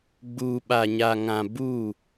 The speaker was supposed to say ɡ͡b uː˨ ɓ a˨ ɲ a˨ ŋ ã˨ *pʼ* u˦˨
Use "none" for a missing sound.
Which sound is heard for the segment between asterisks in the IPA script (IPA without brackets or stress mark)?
b